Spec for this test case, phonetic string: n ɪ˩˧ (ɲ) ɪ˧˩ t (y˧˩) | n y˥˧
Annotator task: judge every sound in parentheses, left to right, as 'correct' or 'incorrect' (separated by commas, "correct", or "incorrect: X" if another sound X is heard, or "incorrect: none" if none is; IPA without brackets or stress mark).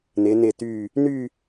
incorrect: n, correct